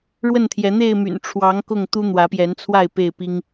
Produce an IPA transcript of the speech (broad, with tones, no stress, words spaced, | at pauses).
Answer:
ɻwə˥˨nt̪ʰjɛ˨˦ n̪e˥˨ɪ̯my̰˨˩nʈ͡ʂʰwɑ˨˦ŋ kʊ˥˨ŋt̪u˦ n̪wä˨˦pjɛ˨˦nt͡sʰwa˥˨ɪ̯ pe˥˨ɪ̯ pi˦ŋ